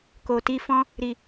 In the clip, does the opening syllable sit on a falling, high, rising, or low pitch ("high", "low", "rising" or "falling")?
low